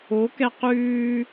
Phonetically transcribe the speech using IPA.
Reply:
o k ɛ q ʉː

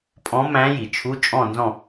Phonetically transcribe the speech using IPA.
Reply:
pʼ ɔ̃˨˦ m æ̃˨˦ j i˩ t͡ʃʰ u˧˥˧ t͡ʃʼ ɔ̃˥˨ n z ɔ̃˥˨

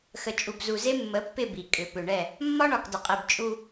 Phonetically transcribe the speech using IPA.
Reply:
x ə˨ t͡ʃʼ u˨ b z u˨ z e˦ mː ə˨˦ pː ɪ˦˨ b i˨ kʼ ʏ˨ p ʏ˨ ɳ ɛ˦˨ | mː ɒ˦ ɳ ɒ˨ k d ə˨ qʼ i˨ b t͡ʃʼ u˦

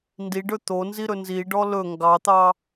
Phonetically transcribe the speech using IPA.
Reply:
n d i ɖ ɵ t̪ o n z i ɾ ɵ n z i ɖ ɔ l ɵ ŋ ɡ ɑ t̪ ɑ

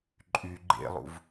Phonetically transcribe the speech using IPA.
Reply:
ǃʼ y ɡ͡ǃ ḛ lˠ ṵ v

